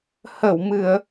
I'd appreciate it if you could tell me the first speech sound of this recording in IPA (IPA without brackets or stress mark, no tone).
h